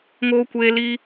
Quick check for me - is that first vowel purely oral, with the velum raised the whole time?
yes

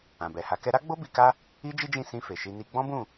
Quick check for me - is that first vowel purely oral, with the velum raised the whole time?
no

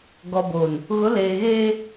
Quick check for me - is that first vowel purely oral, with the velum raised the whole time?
yes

